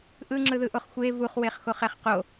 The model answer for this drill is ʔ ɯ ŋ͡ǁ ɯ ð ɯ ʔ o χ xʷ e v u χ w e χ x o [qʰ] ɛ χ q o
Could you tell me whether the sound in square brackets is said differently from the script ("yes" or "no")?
yes